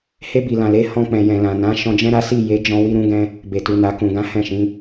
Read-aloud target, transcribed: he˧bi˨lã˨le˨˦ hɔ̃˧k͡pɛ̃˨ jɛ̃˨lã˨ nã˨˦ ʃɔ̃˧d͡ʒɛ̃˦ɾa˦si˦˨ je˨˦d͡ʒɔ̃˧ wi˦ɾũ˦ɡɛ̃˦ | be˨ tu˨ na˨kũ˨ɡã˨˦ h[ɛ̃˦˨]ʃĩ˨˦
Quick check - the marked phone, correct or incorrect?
correct